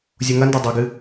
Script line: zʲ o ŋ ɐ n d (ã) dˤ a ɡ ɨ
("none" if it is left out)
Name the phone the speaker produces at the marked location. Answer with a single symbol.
a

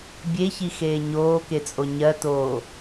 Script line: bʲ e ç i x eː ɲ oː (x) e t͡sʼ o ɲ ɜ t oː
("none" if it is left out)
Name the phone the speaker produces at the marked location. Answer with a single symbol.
k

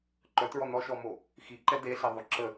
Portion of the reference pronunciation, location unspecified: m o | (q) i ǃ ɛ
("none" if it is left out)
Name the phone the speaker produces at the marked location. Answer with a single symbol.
x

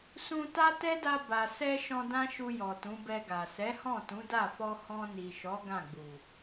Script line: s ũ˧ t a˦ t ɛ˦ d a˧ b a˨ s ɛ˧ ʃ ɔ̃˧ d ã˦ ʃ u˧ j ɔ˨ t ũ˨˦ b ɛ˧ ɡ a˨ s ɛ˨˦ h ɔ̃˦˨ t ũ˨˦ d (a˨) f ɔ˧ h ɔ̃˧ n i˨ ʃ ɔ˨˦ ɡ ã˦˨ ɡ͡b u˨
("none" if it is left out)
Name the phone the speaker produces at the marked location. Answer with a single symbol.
a˦˨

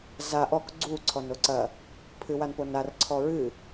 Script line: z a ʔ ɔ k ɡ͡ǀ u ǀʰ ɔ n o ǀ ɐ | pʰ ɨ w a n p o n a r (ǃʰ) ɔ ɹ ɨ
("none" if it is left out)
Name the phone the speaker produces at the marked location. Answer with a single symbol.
ǀʰ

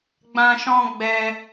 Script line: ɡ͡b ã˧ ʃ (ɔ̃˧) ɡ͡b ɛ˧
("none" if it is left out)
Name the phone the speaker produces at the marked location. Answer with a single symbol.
ɔ̃˧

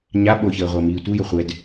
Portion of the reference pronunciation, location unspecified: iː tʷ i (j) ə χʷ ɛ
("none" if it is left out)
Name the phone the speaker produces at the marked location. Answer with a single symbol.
j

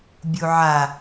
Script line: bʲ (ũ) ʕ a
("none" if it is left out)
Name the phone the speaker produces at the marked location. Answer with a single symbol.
u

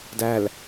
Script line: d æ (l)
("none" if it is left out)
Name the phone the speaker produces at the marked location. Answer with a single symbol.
l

